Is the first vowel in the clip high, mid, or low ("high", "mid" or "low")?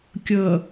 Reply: mid